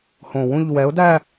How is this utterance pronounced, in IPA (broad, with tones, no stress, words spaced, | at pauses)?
hõ˨˩wũ˥˧ʎ wɛ˨˥ʊ̯ dæ˥˧